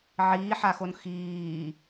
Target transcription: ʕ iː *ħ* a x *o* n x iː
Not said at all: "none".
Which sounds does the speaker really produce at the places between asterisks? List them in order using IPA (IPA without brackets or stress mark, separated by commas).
ħ, o